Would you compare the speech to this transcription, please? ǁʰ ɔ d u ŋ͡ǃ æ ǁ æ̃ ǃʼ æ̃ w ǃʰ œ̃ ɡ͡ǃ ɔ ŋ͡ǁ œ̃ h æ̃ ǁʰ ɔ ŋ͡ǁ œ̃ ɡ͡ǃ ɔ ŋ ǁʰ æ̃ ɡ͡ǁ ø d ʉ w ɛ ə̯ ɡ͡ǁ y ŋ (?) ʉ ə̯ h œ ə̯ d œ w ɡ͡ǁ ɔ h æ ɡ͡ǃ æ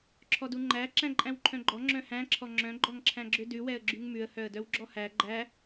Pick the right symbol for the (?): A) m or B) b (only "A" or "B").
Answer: A